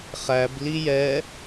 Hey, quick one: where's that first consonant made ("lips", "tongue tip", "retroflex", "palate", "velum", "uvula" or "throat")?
uvula